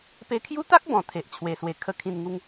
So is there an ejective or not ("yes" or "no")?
no